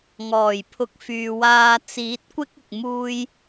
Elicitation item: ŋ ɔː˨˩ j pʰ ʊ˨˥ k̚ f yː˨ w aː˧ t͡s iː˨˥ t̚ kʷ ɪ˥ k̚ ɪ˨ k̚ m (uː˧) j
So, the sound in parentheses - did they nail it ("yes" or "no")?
yes